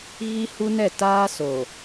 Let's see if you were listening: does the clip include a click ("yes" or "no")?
no